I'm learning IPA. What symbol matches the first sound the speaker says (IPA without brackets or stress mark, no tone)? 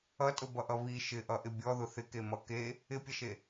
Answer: ʌ